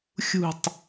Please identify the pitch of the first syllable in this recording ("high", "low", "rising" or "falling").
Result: falling